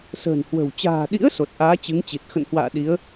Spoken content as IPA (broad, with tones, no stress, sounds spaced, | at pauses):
s ə̤ː˨˩ n h w ə̤˨˩ w t͡ɕ a̤ː˨˩ ɗ ḭ˧˥ ə̯ s o˨˩ t̚ ʔ aː˨˦ t͡ɕ ɨ˨˦ ŋ t͡ɕ i˨˩ t̚ x ə̰˧˨ n h w a̰ː˧˨ ɗ i˨˦ ə̯